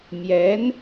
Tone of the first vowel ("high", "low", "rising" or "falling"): rising